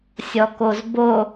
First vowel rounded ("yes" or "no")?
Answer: yes